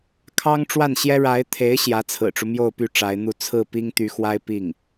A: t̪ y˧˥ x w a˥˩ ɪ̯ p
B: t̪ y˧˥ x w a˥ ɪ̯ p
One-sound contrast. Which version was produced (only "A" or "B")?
B